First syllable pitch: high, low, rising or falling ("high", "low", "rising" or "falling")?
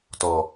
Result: low